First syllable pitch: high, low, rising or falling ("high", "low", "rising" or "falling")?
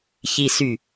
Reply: low